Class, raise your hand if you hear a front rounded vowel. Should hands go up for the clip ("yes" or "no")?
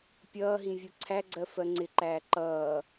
no